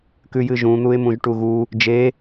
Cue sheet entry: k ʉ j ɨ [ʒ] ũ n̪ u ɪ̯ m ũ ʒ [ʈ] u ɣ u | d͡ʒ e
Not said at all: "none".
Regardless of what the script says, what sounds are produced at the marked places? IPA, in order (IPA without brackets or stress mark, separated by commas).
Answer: ʒ, ʈ